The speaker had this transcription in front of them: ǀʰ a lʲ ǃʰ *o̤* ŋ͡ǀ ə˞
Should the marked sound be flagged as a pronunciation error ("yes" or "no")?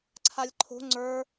no